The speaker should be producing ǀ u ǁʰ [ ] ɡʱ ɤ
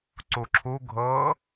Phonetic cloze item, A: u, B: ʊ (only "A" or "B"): A